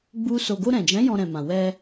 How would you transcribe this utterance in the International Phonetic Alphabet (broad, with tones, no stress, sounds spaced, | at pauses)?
ɡ͡b u˦ s o˧ ɡ o˧ ɾ ɛ̃˨ d͡ʒ ɛ̃˨˦ j ɔ̃˧ ɾ ɛ̃˨ m ã˨ w ɛ˧